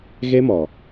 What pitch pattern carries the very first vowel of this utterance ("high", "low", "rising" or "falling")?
high